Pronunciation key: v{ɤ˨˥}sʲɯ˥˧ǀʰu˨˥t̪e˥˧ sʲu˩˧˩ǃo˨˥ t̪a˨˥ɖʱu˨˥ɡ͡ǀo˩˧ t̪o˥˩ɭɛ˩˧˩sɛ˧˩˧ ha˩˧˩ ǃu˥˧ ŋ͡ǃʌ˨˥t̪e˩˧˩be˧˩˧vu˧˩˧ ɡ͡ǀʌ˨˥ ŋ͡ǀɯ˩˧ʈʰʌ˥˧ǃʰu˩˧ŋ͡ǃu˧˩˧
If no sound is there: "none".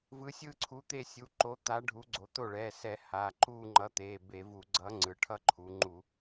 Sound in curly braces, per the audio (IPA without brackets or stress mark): ɯ˨˥